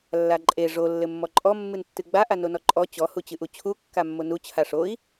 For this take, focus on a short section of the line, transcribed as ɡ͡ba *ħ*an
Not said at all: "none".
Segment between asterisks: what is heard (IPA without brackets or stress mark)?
ʔ